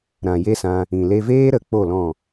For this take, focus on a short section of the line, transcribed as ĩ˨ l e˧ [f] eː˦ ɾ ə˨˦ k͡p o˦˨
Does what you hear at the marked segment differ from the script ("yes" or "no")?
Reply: yes